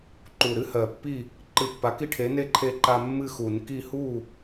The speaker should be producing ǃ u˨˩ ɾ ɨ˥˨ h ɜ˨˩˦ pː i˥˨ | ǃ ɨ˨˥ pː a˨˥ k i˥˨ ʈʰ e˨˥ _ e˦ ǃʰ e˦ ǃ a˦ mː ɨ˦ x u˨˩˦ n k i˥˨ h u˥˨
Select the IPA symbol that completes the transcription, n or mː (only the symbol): n